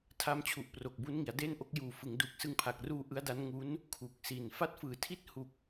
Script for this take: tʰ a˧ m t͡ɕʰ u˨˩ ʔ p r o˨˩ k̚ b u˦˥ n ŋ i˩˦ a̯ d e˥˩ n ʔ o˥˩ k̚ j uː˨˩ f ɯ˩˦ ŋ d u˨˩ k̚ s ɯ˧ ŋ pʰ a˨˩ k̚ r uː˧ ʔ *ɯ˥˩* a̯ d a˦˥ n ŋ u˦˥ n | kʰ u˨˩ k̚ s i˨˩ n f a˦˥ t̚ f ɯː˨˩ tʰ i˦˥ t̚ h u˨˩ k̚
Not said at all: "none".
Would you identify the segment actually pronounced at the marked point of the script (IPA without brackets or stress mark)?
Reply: ɯ˦˥